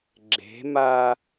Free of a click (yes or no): no